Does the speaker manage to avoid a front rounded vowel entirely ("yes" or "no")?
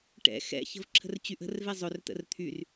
no